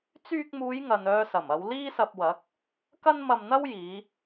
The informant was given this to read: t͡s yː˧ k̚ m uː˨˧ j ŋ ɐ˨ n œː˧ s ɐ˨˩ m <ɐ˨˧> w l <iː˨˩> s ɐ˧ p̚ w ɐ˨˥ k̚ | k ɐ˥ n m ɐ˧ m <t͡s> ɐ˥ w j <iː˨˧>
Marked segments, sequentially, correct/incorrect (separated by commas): correct, incorrect, incorrect, correct